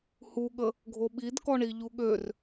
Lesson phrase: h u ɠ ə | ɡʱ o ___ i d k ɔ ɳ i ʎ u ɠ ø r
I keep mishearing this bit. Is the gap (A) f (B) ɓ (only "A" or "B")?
B